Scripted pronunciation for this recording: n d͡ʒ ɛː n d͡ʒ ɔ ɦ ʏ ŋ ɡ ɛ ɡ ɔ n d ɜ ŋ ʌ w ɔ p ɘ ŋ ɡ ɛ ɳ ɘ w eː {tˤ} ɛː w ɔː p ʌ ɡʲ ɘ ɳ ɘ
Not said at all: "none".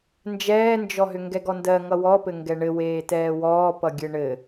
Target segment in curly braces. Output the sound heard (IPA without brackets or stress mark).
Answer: t